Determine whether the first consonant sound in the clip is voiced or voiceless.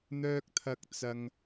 voiced